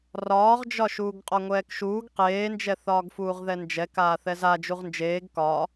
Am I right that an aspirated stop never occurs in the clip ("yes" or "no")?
yes